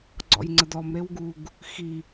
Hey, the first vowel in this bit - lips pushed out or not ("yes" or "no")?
yes